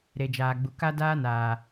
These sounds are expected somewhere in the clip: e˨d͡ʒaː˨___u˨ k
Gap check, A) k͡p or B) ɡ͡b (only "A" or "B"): B